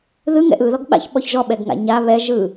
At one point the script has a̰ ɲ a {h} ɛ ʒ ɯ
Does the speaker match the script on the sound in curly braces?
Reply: no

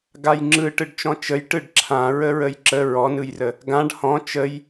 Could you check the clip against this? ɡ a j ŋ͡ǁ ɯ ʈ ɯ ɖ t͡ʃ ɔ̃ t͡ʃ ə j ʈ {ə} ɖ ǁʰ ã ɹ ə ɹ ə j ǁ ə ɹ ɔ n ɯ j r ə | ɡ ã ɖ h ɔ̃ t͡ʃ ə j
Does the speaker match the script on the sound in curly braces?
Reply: no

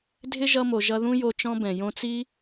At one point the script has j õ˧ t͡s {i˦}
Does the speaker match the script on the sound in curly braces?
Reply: yes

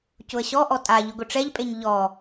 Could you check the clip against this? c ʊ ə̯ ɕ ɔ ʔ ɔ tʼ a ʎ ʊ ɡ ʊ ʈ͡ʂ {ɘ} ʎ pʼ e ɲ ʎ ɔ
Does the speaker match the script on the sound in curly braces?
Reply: no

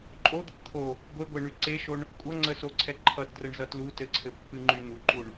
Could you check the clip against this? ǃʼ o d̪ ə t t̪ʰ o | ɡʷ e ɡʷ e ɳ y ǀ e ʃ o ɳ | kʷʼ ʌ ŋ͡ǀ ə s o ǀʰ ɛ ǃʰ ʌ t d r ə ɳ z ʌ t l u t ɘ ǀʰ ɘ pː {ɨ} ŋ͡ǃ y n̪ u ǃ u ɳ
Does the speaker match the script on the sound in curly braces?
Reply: yes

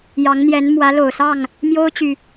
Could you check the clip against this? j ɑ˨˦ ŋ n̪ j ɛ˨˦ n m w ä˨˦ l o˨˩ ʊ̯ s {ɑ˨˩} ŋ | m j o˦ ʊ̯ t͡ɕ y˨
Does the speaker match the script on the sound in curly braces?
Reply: no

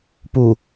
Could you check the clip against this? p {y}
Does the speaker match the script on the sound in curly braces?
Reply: no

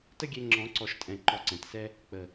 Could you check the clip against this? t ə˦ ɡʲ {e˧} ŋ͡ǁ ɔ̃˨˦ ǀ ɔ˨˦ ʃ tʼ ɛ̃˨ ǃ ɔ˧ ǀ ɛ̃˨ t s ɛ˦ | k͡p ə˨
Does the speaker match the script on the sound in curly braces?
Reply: yes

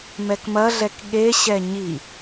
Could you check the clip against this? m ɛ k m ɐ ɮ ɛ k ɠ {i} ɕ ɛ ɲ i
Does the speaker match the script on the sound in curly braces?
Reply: no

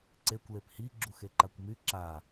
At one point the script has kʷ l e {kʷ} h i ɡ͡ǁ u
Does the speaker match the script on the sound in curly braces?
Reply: no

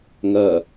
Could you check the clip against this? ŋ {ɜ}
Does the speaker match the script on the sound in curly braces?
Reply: yes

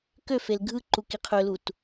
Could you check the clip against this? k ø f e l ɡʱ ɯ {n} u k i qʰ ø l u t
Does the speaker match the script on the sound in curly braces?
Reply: no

